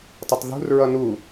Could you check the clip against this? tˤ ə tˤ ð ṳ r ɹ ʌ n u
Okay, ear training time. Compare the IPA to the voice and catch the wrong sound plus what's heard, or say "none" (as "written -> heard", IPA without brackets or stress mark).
none